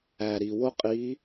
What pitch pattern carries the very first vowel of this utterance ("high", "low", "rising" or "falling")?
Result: low